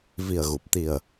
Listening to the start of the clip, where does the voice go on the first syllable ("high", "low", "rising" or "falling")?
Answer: low